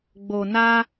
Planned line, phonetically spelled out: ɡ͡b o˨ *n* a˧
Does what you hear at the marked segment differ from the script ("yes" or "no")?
no